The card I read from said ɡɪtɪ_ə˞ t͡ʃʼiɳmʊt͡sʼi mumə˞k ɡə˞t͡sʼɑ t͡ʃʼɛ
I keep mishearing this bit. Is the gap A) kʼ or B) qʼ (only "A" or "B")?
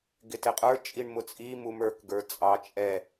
B